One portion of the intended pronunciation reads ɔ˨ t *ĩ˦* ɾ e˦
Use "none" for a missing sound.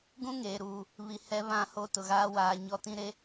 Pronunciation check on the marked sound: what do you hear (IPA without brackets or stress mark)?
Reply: ĩ˦